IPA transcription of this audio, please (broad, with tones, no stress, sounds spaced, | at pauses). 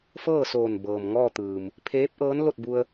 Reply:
f ɤː˥˨ s oː˧˩ n b ɤː˩ m ŋ ɔː˥˨ t̪ ɯː˩ m | pʰ eː˧˥ p̚ ʔ ɤː˧˥ n l o˥˨ t̚ b u˧ ə̯